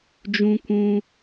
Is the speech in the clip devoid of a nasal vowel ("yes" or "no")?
no